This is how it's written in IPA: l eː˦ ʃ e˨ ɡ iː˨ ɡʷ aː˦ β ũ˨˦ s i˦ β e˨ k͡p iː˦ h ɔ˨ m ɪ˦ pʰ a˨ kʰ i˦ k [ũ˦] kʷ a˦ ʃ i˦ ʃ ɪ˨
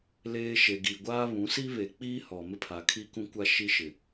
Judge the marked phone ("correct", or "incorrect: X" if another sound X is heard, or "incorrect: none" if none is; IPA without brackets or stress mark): correct